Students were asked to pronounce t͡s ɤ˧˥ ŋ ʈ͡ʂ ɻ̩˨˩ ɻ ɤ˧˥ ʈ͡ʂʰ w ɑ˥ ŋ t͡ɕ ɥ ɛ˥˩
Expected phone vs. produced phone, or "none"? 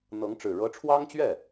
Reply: t͡s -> n̪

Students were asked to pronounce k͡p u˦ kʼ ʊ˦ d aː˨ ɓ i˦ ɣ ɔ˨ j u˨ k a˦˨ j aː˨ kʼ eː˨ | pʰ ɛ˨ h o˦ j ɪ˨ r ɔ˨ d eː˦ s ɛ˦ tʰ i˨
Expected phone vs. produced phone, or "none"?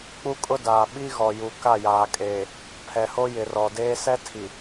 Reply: none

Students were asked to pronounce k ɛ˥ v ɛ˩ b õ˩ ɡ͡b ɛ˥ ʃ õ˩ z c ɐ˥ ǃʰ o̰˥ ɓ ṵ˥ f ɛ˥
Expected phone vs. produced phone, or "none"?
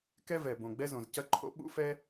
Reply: ʃ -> z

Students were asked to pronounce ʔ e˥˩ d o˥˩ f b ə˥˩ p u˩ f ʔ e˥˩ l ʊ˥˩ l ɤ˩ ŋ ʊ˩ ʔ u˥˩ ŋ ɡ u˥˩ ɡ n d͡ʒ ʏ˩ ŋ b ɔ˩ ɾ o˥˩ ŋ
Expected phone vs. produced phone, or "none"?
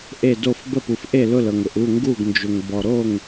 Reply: none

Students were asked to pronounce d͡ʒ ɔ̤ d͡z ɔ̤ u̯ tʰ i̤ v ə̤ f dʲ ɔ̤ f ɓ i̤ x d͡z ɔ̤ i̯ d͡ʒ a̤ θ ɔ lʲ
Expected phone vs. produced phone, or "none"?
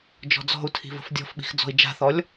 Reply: none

